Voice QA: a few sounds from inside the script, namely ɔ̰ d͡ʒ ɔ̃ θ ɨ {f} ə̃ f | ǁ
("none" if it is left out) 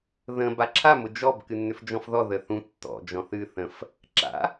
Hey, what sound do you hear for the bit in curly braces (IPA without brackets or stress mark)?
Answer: θ